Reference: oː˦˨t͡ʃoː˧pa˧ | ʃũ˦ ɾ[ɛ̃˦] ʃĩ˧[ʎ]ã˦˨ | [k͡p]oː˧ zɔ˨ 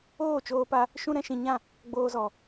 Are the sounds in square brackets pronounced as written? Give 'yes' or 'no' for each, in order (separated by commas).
yes, no, no